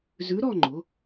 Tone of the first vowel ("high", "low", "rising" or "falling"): rising